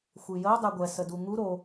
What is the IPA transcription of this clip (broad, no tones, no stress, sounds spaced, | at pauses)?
xʷ i j ə o̯ dˤ ɛ ɡʷ ɛ s ə d u ŋ u ɾ o